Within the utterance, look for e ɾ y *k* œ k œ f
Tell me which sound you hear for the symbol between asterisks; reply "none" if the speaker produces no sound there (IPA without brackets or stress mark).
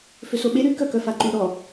k